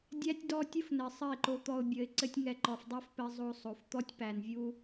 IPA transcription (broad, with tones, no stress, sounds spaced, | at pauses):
dʲ æ˦ tʲ d ɔ˦ tʲ ə˦ f n ɘ˨ sˤ ɘ˦˨ ɪ̯ ǃ o˧ t̪ ɔ˧ ʊ̯ bʲ ə˨˦ ɪ̯ ǀ ɘ˦ tʲ ŋ ɛ˧ ǃ ɔ˨ f dˤ ɛ˦ f p ɘ˧ zˤ o˧ sˤ o˨ f t̪ ɔ˦ tʲ p æ˨ n vʲ u˦